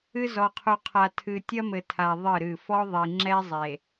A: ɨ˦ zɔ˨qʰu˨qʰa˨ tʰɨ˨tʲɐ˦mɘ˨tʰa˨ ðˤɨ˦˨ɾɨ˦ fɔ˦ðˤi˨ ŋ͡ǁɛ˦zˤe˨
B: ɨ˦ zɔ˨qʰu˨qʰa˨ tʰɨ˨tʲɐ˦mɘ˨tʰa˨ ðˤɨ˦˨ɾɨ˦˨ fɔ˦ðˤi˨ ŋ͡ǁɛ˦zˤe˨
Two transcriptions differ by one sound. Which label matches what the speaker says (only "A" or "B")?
B